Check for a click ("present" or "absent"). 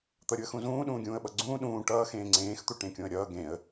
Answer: present